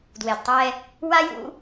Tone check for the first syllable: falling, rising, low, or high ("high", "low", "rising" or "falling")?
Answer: low